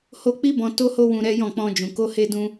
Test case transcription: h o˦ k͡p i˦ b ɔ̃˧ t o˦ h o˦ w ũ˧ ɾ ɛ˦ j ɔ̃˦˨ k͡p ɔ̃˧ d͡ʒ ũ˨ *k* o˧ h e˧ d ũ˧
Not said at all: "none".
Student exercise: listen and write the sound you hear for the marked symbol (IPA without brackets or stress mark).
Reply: k